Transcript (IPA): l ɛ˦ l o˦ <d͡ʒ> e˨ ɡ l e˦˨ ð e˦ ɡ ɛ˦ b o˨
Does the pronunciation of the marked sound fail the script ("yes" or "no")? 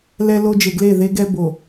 no